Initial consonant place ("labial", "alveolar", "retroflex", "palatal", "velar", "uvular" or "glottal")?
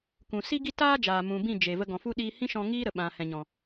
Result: velar